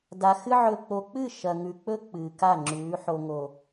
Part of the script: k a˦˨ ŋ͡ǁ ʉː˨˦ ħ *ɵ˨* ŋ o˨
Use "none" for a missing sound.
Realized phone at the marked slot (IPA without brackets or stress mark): o˨